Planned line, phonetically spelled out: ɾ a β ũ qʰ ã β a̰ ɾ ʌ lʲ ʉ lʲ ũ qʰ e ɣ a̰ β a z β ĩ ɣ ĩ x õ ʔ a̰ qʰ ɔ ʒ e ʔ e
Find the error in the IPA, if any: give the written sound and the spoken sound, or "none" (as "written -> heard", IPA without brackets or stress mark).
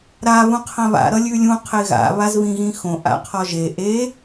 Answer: none